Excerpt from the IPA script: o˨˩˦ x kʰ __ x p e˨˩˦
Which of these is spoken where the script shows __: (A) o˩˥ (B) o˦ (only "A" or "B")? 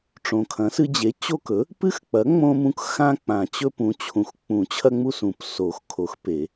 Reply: A